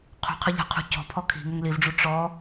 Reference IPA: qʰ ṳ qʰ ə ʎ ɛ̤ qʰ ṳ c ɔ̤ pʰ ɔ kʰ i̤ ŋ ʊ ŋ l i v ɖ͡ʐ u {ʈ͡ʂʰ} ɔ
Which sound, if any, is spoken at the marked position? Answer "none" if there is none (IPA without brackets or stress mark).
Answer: ʈ͡ʂ